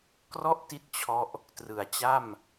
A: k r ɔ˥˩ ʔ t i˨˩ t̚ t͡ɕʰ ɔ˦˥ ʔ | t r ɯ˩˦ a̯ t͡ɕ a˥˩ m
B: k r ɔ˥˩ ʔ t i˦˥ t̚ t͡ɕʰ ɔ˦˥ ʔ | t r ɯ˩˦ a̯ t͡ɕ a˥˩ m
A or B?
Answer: B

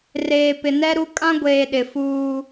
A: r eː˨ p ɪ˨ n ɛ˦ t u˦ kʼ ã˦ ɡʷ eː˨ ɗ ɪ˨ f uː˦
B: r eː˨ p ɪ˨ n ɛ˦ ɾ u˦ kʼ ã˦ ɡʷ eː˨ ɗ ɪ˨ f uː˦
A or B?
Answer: B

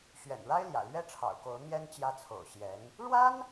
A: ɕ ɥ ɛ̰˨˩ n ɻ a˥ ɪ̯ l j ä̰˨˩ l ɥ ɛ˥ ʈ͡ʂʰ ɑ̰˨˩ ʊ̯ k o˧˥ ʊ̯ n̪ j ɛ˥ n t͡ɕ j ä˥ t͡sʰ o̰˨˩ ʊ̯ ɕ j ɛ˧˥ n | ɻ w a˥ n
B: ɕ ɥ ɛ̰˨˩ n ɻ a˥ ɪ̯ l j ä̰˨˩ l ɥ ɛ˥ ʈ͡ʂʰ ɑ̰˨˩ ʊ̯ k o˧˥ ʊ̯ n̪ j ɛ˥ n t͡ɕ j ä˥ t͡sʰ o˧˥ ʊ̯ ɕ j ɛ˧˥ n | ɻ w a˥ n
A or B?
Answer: A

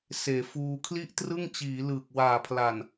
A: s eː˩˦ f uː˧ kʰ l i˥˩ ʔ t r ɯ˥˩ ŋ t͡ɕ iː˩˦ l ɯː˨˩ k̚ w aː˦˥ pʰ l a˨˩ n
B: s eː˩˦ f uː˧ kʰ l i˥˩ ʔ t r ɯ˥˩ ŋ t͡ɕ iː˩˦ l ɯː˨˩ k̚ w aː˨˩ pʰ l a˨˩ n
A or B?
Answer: B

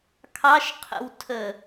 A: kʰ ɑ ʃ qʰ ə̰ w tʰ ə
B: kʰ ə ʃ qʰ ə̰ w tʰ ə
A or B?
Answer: A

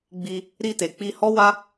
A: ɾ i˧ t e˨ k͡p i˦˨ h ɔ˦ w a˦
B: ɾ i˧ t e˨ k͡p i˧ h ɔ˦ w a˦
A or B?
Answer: B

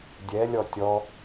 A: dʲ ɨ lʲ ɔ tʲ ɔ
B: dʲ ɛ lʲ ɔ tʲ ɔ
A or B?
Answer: B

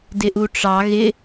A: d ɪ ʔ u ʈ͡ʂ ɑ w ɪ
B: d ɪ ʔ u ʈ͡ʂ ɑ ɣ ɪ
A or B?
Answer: B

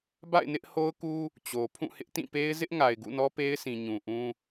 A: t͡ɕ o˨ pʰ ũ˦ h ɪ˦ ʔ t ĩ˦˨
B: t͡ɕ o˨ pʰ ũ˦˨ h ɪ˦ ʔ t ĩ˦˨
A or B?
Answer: B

